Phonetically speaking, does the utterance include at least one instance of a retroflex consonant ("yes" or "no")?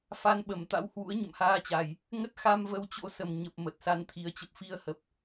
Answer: no